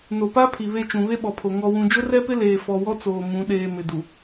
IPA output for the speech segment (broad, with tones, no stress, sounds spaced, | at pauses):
n o˨ p a˦ pʰ i˨ β e˦˨ t͡ʃ ũ˨ β e˦ ɓ ɔ˨ pʰ o˨ ŋ ɔ˨ w ũ˨ d͡ʒ ʊ˦ r ɛ˦ p ɪ˦ l eː˨ f ɔ˨ w ɔ˦ t͡s oː˨ m ũ˨˦ ɗ eː˨ m ɪ˨ d u˨